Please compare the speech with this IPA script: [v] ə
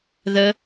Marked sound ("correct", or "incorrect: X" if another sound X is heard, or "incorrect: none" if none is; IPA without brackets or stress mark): incorrect: ð